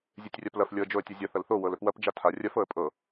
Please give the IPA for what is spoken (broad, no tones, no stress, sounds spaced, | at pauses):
zʲ e tʲ rʲ a p l ɐ f lʲ ɤ ə̯ d͡ʒ o ə̯ tʲ ɐ zʲ ɐ θ ɐ l θ o w ɤ l ɵ p w ɐ p d͡ʒ a tʰ a rʲ ɐ f ɤ ə̯ pʼ ɤ